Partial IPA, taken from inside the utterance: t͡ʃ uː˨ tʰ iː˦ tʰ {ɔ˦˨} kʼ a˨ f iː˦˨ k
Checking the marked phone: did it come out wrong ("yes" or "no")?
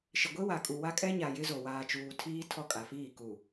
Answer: no